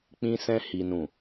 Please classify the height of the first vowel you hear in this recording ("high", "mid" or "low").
high